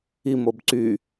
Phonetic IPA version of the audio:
i m o b ǀ y

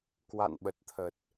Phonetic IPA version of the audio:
k w a̰˧˨ n ɓ ə˨˩ t̚ t̪ʰ ə˨˩ t̚

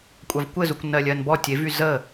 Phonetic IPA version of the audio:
kʷʼ a v kʷ ɘ z u kʷ n ɜ lʲ ɜ n b ɔ tʲ e v y z ə

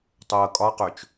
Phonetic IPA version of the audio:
tˤ ɤ kʼ ɒ q ø t͡ʃ

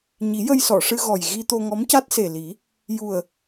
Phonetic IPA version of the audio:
ɲ i˨˩˦ j ə˧ j s ɔ˨˩˨ ʂ ɨ˧ ɣ ɔ˨˩ j ɣ i˧ t̪ o˧ ŋ ɔ˧˥ m c a˦˥ t̚ s e˨˩ l i˨˩˦ | j u˨˩ ə̯

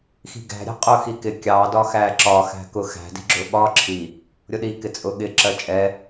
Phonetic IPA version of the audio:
x i̤ ɡ æ̤ ɾʲ æ̤ qʼ ʊ x i k ɪ kʲ ɑ d ɒ x æ ǁ ɒ x æ̤ k ʊ x æ̤ d i̤ ɡ͡ǁ ʊ ɓ ɒ ǁʰ i | ɾʲ ʊ ɗ i k ɪ t͡sʼ ʊ ɠ ɪ ǁ ɜ t͡ʃʼ ɛ

